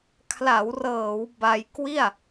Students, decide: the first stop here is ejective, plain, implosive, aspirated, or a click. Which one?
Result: aspirated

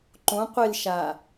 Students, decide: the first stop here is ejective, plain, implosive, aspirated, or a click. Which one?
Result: click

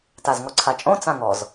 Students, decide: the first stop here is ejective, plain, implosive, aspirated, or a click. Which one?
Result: plain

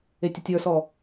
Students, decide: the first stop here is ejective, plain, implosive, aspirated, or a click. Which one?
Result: plain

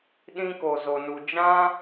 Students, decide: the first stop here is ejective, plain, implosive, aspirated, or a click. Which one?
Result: implosive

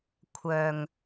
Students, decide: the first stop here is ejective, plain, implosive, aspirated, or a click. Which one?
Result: aspirated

